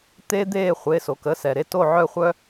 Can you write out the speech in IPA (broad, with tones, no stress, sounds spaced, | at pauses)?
t̪ e˦ d̪ eː˦˨ χʷ e˩˧˩ s o˩ k ə˩˧˩ s ɛ˩ ɾ e˦˨ t o˦˨ ʕ œ˦˨ χʷ œ˦